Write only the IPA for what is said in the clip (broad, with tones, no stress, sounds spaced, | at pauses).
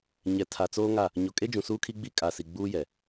ɲ ɛ˨ tʰ a˨ t͡s oː˦ ŋ a˦˨ | ɲ o˨ kʼ e˦ d͡ʒ ũ˨ s uː˦ kʰ i˦ ɡ͡b i˦ kʼ a˨ s i˨ ɡ͡b uː˦ j ɛ˨